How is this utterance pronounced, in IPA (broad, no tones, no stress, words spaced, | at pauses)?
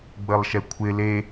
ɡ͡bəlˠʃɛkʷʰɪ le